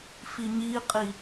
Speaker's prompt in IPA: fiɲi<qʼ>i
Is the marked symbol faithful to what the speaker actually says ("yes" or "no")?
yes